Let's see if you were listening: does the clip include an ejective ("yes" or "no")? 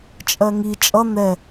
yes